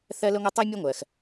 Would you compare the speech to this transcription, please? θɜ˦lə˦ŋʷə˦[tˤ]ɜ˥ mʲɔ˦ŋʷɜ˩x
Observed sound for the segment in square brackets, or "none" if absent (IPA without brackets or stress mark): tˤ